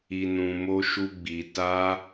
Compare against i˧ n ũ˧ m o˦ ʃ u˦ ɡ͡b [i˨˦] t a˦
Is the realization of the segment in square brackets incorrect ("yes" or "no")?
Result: yes